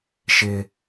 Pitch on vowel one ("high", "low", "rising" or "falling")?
high